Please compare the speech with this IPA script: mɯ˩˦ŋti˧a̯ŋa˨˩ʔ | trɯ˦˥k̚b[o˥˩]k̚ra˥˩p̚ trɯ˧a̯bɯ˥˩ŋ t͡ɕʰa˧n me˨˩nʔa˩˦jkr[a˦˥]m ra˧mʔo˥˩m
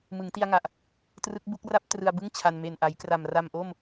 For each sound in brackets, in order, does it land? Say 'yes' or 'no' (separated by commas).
no, no